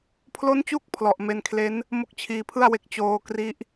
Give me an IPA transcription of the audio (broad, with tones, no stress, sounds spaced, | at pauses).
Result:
pʰ l o˦˥ n t͡ɕ u˦˥ k̚ pʰ l ɔ˨˩ ʔ m e˧ n kʰ l e˦˥ n | m o˥˩ k̚ t͡ɕʰ iː˧ pʰ ɯ˥˩ a̯ w e˦˥ k̚ t͡ɕ oː˧ k r i˦˥ ʔ